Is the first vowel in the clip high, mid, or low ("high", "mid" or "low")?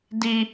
high